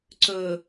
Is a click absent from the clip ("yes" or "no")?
no